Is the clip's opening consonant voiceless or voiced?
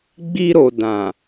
voiced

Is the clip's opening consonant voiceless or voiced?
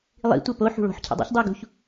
voiced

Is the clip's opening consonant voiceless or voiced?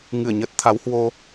voiced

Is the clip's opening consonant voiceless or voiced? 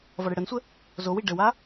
voiced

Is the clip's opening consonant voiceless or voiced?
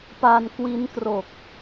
voiceless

